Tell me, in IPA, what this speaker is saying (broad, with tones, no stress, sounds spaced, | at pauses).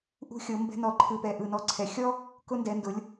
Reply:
ʔ ṳ˧ xʲ ɤ˩˧ m b ɛ̤˧ n ɔ˧˩ ǃʰ ɯ˧˩ p ɛ˧˩ ʔ ɯ˧˩ n ɔ˧ ǀʰ ɛ˩˧ xʲ ɔ˥ | k ʊ˧ n d ɛ˩˧ n d ʊ˩˧ lʲ